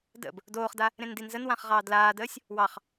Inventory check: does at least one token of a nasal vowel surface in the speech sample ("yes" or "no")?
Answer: yes